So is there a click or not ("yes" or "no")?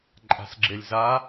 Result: yes